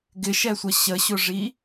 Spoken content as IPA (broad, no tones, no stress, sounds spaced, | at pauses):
ɡ ɪ ʃ ɛ sʷ ʌ ɕ ə ɕ ʊ ʐ i